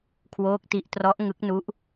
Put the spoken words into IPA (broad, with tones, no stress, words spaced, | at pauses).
kʰwoː˦˥k̚ti˦˥ʔtrɔ˦˥ʔ ŋɯ˦˥k̚nu˦˥ʔ